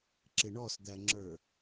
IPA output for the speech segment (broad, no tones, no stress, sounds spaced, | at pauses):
ǁ ɪ ɳ ɔ s d̪ æ ŋ͡ǁ ə˞